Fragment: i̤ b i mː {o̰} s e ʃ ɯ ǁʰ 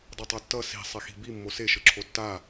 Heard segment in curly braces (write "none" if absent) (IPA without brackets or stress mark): o